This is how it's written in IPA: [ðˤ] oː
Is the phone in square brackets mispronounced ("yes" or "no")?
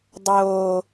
yes